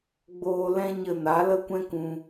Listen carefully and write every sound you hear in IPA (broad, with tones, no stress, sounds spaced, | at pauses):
ɡ͡b oː˧ l ɛ̃˦ ɲ ə˧ n a˨˦ l ə˦ kʷ ɛ̃˦ k ũ˧